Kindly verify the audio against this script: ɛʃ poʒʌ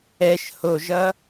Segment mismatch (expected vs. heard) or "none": p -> h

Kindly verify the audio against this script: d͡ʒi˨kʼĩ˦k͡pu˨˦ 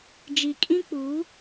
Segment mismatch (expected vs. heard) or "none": none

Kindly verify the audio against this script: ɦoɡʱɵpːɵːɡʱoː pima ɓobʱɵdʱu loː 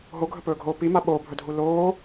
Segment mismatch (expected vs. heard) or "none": pː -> p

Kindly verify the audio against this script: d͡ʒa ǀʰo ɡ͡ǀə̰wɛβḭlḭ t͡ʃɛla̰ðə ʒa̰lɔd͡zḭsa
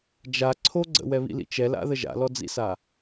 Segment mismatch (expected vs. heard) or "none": none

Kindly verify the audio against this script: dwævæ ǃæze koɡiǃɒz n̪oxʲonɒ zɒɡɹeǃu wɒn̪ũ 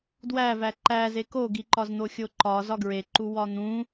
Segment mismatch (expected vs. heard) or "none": n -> ǃ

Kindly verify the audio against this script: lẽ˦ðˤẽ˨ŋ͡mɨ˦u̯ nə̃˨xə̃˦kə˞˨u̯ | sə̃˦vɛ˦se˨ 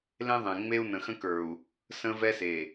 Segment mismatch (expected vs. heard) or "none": ɨ˦ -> e˦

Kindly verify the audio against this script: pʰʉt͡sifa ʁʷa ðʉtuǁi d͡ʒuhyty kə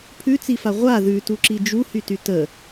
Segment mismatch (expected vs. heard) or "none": k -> t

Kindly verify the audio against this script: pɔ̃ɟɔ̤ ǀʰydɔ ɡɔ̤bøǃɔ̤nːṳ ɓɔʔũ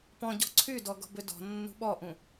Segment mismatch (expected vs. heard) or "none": ǃ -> d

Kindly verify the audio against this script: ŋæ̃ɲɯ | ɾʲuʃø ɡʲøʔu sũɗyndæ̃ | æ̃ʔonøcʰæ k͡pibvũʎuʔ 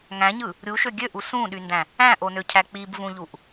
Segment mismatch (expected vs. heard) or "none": none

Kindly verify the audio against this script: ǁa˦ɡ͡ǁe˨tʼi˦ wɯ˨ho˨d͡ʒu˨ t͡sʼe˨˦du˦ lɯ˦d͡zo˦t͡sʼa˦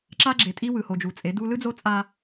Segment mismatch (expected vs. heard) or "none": none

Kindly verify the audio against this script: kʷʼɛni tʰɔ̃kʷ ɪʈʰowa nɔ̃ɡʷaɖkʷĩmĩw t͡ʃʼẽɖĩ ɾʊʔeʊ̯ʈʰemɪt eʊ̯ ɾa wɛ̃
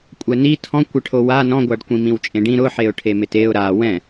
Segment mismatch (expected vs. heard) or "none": ʔ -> ħ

